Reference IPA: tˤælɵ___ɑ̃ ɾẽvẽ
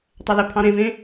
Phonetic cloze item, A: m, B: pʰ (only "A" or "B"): B